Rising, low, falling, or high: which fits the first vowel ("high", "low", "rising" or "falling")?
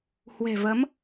low